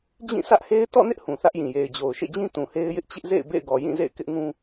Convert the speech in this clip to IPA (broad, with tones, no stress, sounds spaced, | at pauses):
d͡ʑ ĩ˦˨ sʰ ä˦ ʔ h e˦ ɪ̯ t ɔ̰˦˨ n ɪ˦ ʔ h ũ˨ θ ä˦ ʔ j ĩ˨ j e˨ ɪ̯ d͡ʑ o˨ ʊ̯ ʃ ḛ˦˨ d͡ʑ ĩ˦ t ũ˨ h e˦ ɪ̯ j ɪ˦ ʔ t͡ɕ ɪ˦ ʔ z ḛ˦˨ ɪ̯ b ḛ˦˨ ɪ̯ ɡ ɔ˨ j ĩ˦˨ z ḛ˦˨ ɪ̯ k ɪ˦ ʔ ŋ ũ˦